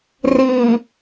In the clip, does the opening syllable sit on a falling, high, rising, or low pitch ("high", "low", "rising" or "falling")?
low